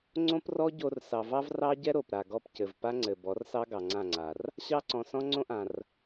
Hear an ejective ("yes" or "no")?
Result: no